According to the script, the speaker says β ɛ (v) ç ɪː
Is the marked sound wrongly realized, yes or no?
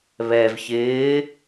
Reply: no